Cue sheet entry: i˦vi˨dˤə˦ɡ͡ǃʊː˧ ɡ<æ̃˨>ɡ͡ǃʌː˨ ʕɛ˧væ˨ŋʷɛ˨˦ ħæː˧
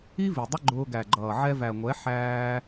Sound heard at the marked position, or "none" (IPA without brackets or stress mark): æ˨